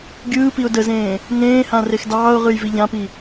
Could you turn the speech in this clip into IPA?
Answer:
ɡʲ ɯː p i ʊ̯ d ə z ẽː | ŋ ẽː h ã r e x d ɑː ʊ̯ ʁ ɯ j v i ʎ ã p i

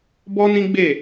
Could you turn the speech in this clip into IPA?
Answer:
b ɔ˦ n ĩ˦ ɡ͡b e˦˨

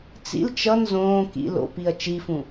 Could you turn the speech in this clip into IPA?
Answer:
t͡s ḭ l t͡ʃ ʌ n z õː k ḭ l o̰ p i ɐ̯ t͡ʃ i f ũ

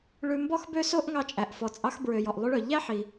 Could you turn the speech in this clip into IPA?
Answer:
ɭ ʉ˧ m b ɔ˥ x b ø˥ s o˥ ʔ ŋ ɑ˧ t͡ʃʼ æ˩ ʔ f ɔ˩ t͡sʼ ɑ˧ x b ɹ ø˩ j ɔ˩ ʔ lˠ y˧ ɭ œ˩ ʎ æ˥ ħ i˩

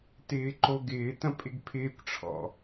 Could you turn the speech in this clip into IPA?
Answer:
t ɪː ǃ o ɡ ɪː t ɐ̃ pʼ ɪ ɡ pʰ ɪː kʷ ʈ͡ʂʰ ɔ̰

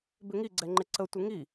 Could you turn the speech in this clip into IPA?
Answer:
b ɪ ŋ i ɡ͡ǀ ɛ ŋ͡ǃ ɪ ǀ ə tʷ ɪ ŋ i

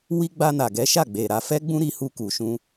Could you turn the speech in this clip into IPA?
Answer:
w i˧ ɡ͡b a˧ n a˨ ɡ ɛ˨˦ ʃ a˦˨ ɡ͡b e˨ ɾ a˧ f ɛ˦ ɡ͡b ũ˦ ɾ i˧ h u˧ k u˨ ʃ ũ˧

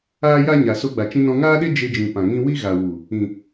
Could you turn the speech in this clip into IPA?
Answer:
aː˦ j a˦ ɲ a˨ s o˧ ɡ͡b a˨ t͡ʃ ĩ˧ n ɔ̃˧ ŋ aː˦ ɗ e˦ d͡ʒ e˧ d͡ʒ ĩ˨ p ã˨ ŋ ĩ˦ w i˦ ɣ a˨ w u˨ | ĩ˨

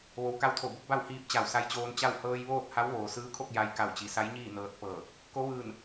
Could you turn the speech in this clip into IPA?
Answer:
ʋ o˩˧ w k a˧ w t̪ʰ o˧˩ b o˧˥ k̚ b a˥˨ w h iː˧ p̚ t͡ɕ a˧˩ w s a˧ j t͡ɕ oː˧ n t͡ɕ a˥˨ w h ɤː˧ j ʋ oː˥˨ t̚ h a˧˥ w ʋ oː˩ s ɯː˧˥ kʰ o˥˨ k̚ j a˧ j k a˧˩ w t͡ɕ i˩ s a˧˥ j ɲ iː˥˨ n ɤː˧ t̚ p ɤː˧˩ | k o˧˥ ʋ ɯː˧˩ n

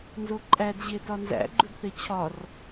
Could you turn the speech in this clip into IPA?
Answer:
n z o ǃʼ æ d ʑ e t ɒ n z æ̰ ɡ͡ǃ u d θ e t͡ɕʰ ɒ r

